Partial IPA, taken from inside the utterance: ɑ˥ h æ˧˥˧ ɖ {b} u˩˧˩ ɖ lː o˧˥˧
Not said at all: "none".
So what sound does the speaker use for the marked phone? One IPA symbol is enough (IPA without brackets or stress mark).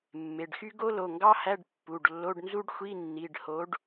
pː